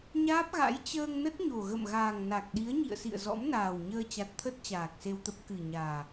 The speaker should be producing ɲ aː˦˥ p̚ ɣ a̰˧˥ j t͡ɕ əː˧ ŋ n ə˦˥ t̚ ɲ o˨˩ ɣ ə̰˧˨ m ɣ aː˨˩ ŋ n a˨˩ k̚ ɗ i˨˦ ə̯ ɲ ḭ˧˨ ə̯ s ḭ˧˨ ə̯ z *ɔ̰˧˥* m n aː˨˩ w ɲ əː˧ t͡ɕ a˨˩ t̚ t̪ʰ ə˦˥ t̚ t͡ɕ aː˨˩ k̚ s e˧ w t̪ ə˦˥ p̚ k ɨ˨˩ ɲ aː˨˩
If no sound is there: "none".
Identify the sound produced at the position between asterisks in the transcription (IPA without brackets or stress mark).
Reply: ɔ̰˧˥